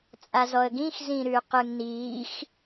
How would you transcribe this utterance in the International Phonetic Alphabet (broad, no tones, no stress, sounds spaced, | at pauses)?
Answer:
t͡sʼ a z ɔ ə̯ ɡ ĩ x z ĩ ɾ ʉ q ɯ ŋ n iː x